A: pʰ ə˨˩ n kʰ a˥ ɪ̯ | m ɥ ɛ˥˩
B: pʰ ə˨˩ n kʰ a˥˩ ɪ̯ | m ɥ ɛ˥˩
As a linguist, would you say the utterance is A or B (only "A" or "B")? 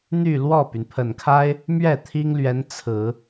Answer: A